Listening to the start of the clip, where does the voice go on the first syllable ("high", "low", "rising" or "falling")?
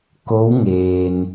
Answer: rising